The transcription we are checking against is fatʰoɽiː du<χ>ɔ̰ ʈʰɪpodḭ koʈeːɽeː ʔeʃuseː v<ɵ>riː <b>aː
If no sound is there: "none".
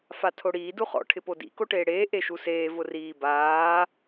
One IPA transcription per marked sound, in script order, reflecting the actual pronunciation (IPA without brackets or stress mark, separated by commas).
χ, ʊ, b